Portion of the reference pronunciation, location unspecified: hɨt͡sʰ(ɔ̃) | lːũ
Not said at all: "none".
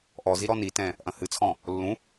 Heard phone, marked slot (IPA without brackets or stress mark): ɔ̃